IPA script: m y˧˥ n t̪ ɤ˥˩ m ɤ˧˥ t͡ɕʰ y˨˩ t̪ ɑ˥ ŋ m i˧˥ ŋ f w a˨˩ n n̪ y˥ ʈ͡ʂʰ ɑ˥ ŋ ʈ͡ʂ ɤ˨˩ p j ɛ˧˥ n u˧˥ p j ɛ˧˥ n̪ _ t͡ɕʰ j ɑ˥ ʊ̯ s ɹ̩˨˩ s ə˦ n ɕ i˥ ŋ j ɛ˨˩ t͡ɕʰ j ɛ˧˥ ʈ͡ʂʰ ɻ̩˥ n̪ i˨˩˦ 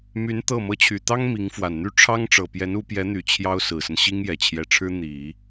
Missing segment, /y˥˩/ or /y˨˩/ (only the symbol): y˨˩